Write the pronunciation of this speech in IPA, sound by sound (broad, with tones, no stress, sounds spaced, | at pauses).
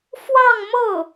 f w ɑ˥˧ ŋ m ɤ˥˩